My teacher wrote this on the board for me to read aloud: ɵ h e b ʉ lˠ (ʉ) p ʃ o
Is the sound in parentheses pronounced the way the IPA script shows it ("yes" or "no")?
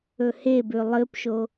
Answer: no